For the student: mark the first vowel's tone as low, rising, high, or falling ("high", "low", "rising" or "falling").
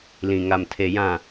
low